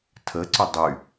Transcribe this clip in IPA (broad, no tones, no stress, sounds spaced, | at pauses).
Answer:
tʰ ə ǀ ʊ dˤ y